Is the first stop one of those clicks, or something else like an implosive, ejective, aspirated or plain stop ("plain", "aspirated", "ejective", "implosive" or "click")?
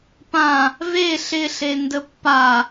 plain